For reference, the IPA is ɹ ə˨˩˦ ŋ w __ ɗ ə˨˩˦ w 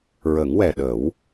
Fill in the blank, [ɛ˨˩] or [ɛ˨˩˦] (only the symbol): ɛ˨˩